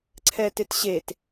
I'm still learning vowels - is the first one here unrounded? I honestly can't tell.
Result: yes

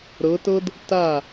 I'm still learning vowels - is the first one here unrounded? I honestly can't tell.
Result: yes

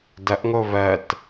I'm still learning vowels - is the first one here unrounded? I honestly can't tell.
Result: yes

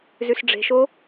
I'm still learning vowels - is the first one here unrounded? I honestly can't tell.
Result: no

